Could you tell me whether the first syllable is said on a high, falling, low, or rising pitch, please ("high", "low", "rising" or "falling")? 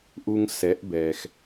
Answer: high